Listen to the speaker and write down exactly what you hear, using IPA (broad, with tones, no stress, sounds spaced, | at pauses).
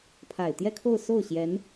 pʰ a˨˩ ɪ̯ t̪ j ɛ˥˧ kʰ o˥˧ ʊ̯ s o˥˩ ʊ̯ ɕ j ɛ˧˥ n